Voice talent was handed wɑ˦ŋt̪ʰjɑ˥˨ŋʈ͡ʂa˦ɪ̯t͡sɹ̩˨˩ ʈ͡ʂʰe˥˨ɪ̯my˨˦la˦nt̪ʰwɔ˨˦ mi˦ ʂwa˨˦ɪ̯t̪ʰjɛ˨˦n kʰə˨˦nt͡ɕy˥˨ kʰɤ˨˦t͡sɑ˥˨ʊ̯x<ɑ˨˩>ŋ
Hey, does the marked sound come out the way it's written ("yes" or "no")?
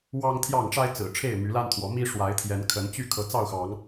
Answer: no